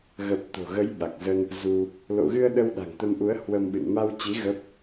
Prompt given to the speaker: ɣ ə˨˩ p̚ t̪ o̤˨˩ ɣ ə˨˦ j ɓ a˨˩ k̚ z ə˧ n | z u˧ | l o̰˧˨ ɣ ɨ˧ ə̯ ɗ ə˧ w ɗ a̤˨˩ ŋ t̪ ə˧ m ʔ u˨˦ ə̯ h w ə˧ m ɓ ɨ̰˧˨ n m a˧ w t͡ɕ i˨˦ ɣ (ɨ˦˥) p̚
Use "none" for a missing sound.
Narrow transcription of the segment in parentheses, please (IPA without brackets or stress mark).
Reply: ə˦˥